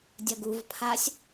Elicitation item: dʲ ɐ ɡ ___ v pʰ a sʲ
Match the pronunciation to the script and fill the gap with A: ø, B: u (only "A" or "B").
B